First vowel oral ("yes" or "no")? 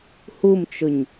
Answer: yes